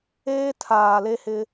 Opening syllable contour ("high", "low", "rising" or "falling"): high